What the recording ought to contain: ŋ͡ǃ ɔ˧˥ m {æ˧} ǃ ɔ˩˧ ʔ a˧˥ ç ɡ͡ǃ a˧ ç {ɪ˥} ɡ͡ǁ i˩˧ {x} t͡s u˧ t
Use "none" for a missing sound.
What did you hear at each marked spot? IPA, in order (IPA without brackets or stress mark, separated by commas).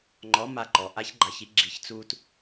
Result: a˧, i˥, ç